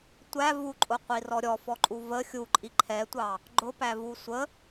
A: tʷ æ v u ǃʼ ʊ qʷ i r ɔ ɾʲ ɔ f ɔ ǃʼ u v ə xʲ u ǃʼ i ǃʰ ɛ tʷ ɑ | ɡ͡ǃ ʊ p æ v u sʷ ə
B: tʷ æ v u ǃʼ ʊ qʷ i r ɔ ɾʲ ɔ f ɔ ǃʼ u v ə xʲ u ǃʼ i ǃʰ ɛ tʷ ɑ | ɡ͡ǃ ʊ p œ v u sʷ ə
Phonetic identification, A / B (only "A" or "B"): A